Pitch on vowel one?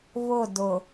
falling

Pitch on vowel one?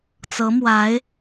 rising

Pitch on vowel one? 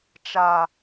low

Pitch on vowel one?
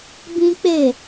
high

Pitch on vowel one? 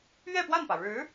falling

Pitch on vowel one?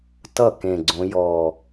falling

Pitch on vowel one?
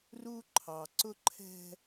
high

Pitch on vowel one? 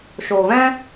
low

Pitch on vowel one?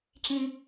low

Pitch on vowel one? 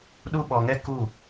high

